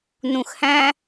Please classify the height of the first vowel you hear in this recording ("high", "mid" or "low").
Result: high